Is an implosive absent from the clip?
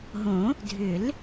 yes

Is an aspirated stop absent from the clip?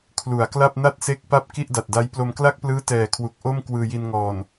no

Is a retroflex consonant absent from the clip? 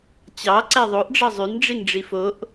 no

